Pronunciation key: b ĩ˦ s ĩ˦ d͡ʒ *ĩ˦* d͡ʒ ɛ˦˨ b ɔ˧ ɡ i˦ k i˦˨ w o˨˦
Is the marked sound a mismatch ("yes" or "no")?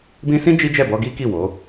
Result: yes